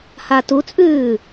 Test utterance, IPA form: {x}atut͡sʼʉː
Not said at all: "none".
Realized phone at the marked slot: h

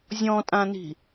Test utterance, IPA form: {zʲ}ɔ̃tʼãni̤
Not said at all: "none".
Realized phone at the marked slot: zʲ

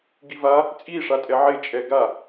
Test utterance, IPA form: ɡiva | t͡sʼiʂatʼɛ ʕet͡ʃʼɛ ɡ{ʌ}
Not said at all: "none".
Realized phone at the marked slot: a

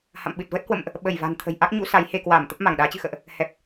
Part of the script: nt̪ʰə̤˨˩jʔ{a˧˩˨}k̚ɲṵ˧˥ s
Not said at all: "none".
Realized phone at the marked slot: a˦˥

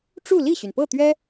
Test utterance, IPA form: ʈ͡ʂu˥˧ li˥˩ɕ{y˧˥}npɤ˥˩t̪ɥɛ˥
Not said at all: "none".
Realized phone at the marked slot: y˩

